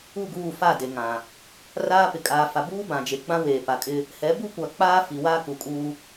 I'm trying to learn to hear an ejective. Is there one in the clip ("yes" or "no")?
yes